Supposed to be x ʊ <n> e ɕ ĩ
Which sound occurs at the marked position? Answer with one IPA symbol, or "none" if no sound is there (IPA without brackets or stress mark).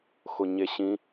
ɲ